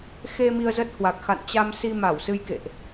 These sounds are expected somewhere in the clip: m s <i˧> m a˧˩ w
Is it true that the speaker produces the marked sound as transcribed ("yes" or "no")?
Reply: yes